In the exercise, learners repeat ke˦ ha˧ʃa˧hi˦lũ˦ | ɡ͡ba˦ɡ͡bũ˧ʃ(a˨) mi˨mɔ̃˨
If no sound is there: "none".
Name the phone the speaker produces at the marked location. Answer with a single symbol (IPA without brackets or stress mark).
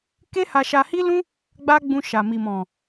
a˨